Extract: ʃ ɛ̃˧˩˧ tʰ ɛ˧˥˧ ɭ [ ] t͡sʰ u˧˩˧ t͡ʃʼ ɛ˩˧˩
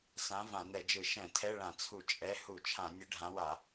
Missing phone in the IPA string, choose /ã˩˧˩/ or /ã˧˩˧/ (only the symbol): ã˧˩˧